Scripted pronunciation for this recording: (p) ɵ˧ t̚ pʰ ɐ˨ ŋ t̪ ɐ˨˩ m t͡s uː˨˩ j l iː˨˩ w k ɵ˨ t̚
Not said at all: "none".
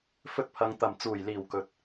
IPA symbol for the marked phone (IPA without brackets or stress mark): f